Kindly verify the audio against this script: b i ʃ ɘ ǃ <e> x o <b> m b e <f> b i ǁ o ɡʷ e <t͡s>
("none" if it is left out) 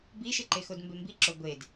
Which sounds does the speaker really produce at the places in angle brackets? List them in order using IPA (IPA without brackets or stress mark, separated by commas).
e, d, m, d